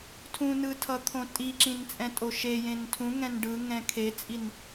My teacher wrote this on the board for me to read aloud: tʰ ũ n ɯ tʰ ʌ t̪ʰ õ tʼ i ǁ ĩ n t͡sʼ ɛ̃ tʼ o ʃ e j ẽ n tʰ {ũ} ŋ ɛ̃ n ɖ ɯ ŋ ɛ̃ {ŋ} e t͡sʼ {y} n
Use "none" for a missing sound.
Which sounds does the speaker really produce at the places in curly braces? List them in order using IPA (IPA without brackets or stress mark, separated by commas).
ũ, kʰ, i